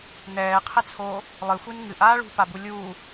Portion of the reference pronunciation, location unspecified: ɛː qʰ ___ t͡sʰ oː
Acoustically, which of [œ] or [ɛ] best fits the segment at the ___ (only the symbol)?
ɛ